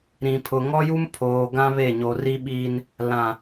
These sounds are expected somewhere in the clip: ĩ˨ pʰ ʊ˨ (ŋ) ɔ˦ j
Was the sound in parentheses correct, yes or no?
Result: yes